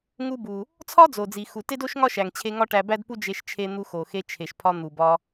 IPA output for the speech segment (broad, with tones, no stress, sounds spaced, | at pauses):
ŋ u˧ b u˩ | t͡sʰ ɒ˥ d͡z o˩ d͡z i˩ x u˩ t e˥ d o˥ ʃ ŋ ɒ˥ ʃ æ˩ ŋ t͡ɕʰ e˧ ŋ ɒ˥ ʈ æ˧ b æ˥ d p u˥ d͡ʒ e˧ ʃ t͡ʃʰ e˧ n̪ u˧ x o˩ x e˧ t͡ʃʰ e˩ ʃ pʰ ɒ˧ n̪ u˩ b ɒ˧